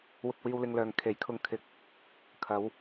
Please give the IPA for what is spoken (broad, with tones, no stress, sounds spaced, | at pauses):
w ʊ˧ k̚ w iː˧ w l ɪ˧ ŋ l œː˨ ŋ kʰ e˨˥ j kʰ ʊ˧ ŋ kʰ ɪ˨˥ k̚ | kʰ ɐ˨˧ w